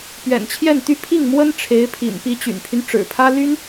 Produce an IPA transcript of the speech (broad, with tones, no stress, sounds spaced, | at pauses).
p ɥ ɛ̰˨˩ n t͡ɕʰ j ɛ˥˩ n t̪ y˥ pʰ i˥˩ ŋ m w ə˥ n ʈ͡ʂʰ e˧˥ ɪ̯ pʰ ḭ˨˩ n p i˧˥ t͡ɕ y̰˨˩ n pʰ y˦ n ʈ͡ʂ ɻ̩˨˩ pʰ ä˥ l y˥ n